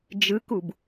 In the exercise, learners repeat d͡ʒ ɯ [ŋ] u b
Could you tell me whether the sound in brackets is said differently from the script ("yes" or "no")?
yes